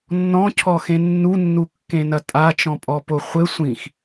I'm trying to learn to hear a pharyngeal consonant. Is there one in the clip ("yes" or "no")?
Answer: no